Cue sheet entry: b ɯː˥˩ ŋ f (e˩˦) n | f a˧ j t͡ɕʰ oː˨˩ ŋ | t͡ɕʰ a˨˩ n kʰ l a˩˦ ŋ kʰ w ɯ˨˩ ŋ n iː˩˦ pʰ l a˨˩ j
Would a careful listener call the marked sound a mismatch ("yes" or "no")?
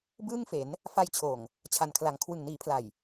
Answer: no